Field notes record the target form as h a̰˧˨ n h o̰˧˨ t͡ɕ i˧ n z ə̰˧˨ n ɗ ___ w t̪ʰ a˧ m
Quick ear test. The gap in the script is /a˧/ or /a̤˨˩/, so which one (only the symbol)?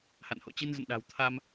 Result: a̤˨˩